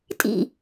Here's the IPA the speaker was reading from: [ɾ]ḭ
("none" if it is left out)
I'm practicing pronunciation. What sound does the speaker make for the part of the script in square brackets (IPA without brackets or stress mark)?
tʼ